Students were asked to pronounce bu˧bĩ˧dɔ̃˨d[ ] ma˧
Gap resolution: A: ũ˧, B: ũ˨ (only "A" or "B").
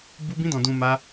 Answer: B